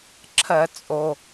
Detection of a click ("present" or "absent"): present